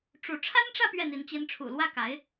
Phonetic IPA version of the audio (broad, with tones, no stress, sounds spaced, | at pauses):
ʈ͡ʂ u˧˥ ʈ͡ʂʰ a˥ n ʈ͡ʂ ä˥˧ p ɥ ɛ˥˩ n̪ i˧˥ n t͡ɕ i˧˥ n ʈ͡ʂʰ ṵ˨˩ l w ä˥˩ k a˧˥ ɪ̯